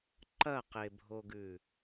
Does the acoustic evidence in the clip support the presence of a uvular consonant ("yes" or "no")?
yes